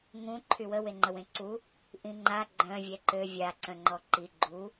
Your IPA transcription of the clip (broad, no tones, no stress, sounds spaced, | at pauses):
ŋ ũ ǃʰ y w ə w e ŋ͡ǃ ə w ẽ ǀ u | ʔ ĩ ŋ͡ǃ a ɡ͡ǃ œ̃ vʲ ɛ ǃ ø vʲ a ǀ œ̃ ŋ͡ǃ ɔ ǃ i ɡ͡ǃ u